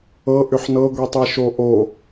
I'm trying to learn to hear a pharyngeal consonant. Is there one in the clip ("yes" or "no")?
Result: yes